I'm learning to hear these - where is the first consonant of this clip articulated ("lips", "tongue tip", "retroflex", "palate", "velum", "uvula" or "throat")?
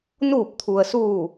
tongue tip